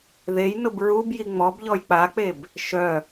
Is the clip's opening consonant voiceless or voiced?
voiced